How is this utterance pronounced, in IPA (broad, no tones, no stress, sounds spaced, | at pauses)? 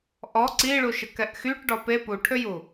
ʔ ɔ ǀ i ɭ u ʃ ə k ɛ ʔ x y ʈ ɖ ɔ p e p u ʈʰ ø j u